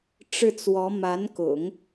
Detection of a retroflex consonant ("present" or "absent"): present